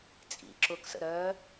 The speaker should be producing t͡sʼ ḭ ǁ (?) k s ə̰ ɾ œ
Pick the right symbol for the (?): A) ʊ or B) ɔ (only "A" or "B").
A